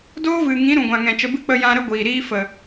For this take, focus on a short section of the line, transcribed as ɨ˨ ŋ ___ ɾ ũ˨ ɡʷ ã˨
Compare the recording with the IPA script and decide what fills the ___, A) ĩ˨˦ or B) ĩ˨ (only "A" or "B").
A